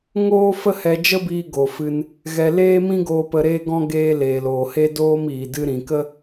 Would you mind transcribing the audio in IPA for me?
ŋ oː˦ f ə˦ h ɛ˧ d͡ʒ ə˦ b iː˧ ɡ o˨ f ɨ˧ n | ɣ ɛ˧ l eː˦ m ĩ˦ ɡ oː˧ p ə˧ ɾ eː˦ ɡ ɔ̃˦ ɡ eː˧ l eː˨ l oː˨ h e˦ d oː˦ m iː˨ d ɨ˧ ɾ ĩ˨ k ə˦

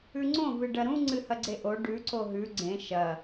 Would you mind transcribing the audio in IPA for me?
ʉ ŋ͡ǀ õ v ɨ ɖ ɐ ɾ ũ ŋ͡ǀ ɨ h ɐ ɡ͡ǀ e ʔ o ɖ ʉ ǀ o ɦ ʉ ɡ͡ǀ ẽ ʃ ɐ

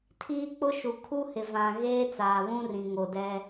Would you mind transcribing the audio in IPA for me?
tʰ iː˦ k͡p ʊ˦ ʃ u˨ kʰ u˦ h ɪ˨ v ã˨ ɣ eː˦ t͡s aː˨ β ũ˦ r ĩ˨ ŋ o˨ d ɛ˦

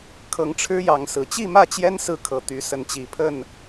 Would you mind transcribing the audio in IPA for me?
kʰ ɤ˨˦ ŋ ʈ͡ʂʰ ɻ̩˦ j ɑ˨˦ ŋ s ɹ̩˨˩ t͡ɕ i˥˨ m ä˥˨ t͡ɕ j ɛ˦ n s ɹ̩˥˨ kʰ ɤ˨˦ t̪ y˨˦ s ə˨˦ n t͡ɕ i˨˩ pʰ ə˥˨ n

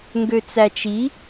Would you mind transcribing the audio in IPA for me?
ŋ ɡ ø t͡s æ t͡ʃ i

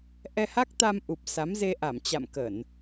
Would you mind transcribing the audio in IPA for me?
ʔ ɛ˧ h a˦˥ k̚ t̪ a˧ m ʔ u˨˩ p̚ s a˨˦ m z e˧ ʔ a˧˩ m t͡ɕ a̰˧˨ m k ə˧˩˨ n

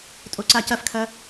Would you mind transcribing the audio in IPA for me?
tʼ o ǀ a c ɐ f kʰ ɐ

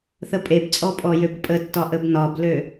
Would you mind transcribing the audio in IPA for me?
θ ə pʼ e b t͡sʼ ɔ pʼ ɔ j ø b pʼ ə tː ɒ ʔ ə b n ɒ b l ø

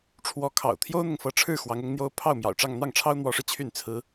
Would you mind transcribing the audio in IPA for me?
ʈ͡ʂʰ w ɔ˧˥ kʰ ɑ̰˨˩ ʊ̯ t̪ʰ j o˥ ʊ̯ n̪ ʊ˨ ŋ f ɤ˧˥ ʈ͡ʂʰ ɻ̩˥˩ x w ɑ˧˥ ŋ ʊ˧˥ ŋ n̪ j o˥ ʊ̯ pʰ ɑ˥˩ ʊ̯ m j ɑ̰˨˩ ʊ̯ ʈ͡ʂ ɑ˥˧ ŋ n̪ ɑ˥˩ ŋ ʈ͡ʂʰ ɑ˥ ʊ̯ n̪ w ɔ˧˥ ʂ ɻ̩˧ t͡ɕʰ y˥˩ n t͡sʰ ɹ̩˥

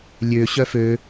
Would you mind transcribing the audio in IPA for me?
lʲ ø ɕ œ f ø

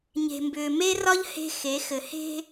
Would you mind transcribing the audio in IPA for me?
ɲ e̤˨ m b ʏː˨ m e˦ r ɒ˦ ʎ h e̤˦ x e˨˦ x ɘ˨ h e̤˦

